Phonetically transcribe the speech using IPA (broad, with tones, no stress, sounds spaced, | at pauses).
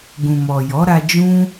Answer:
ɡ ũ˨ m ɔ˨ j ɔ˨˦ ɾ a˧ d͡ʒ ũ˦